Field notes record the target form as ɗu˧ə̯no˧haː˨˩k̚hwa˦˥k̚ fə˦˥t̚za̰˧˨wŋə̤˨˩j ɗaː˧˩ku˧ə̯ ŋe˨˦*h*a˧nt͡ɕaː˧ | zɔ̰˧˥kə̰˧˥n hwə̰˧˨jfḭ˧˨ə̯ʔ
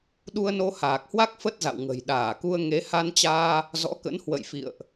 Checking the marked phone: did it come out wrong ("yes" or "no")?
no